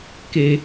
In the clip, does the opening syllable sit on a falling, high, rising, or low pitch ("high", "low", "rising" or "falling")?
low